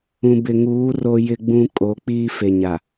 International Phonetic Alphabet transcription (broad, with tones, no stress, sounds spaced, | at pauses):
ũ˨ b ɪ˨ ŋ uː˨˦ r o˦ j ɪ˦ ɡ͡b ũ˦ kʼ o˨˦ k͡p iː˦ f e˨ ɲ a˨